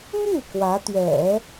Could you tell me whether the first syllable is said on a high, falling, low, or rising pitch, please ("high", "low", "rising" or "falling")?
falling